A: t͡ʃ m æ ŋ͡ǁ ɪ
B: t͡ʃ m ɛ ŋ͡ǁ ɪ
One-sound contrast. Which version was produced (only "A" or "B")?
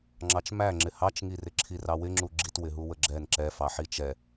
A